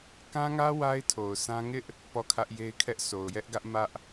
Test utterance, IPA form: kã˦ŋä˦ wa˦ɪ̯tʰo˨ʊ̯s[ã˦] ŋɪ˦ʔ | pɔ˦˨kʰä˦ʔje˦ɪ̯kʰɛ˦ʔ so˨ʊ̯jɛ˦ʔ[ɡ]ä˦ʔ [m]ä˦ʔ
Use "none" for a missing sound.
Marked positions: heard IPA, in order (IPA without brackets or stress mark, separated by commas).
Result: ã˦, ɡ, m